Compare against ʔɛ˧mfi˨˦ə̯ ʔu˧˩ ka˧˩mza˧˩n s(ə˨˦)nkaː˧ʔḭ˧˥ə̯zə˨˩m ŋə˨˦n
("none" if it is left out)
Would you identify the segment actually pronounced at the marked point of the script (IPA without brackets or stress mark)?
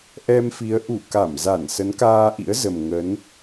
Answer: ə˨˦